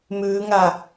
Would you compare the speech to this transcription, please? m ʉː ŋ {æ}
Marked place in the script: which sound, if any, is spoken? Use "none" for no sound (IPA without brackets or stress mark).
a